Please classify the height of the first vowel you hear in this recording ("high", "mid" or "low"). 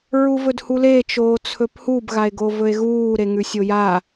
high